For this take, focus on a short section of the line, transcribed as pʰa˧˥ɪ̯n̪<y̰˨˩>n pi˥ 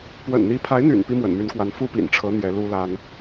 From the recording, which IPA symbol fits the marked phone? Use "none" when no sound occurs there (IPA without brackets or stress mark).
y̰˨˩